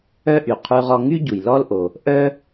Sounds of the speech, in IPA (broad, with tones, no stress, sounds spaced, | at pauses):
œ˥ ʔ y˩ qʰ ʉ˧ ʁ ɔ˧ ŋ y˥ ɟ u˩ j l ɔ˥ l ʔ o˩ | ʔ œ˥